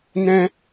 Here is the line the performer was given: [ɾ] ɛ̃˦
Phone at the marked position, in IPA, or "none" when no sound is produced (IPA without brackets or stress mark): n